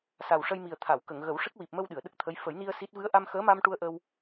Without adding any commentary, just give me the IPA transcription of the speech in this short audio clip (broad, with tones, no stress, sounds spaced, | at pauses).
s a˨˩ w ʂ ə˧ j m i˨˩ ə̯ t̪ʰ a˨˩˨ w k ə˨˩˨ ŋ ɣ ə˨˩˦ w ʂ ə˦˥ k̚ w i˨˩ p̚ m ə˧ w ɗ ɨ˨˩˨ ə̯ ɗ ə˦˥ k̚ t̪ʰ ə˧˥ j f ə˨˩˦ j n i˧ ə̯ s i˦˥ t̚ v ɨ˧˥ ə̯ ʔ a˧ m x əː˧˥ m a˧ m ʈ u˧ ə̯ ʔ ə˧ w